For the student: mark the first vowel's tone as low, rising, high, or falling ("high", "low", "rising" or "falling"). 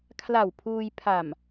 low